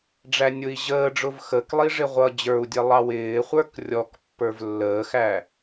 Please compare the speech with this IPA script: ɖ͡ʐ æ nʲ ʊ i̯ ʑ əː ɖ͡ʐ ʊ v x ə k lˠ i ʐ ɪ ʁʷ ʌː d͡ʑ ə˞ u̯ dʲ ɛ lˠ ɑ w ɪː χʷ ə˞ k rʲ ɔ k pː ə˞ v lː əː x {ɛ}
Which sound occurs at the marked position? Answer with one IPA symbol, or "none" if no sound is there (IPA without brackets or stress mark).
æ